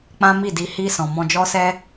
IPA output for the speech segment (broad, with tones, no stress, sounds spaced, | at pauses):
k͡p ã˦ m i˦˨ d i˧ h i˧ s ɔ̃˨ m ɔ̃˧ d͡ʒ ɔ˦ s ɛ˦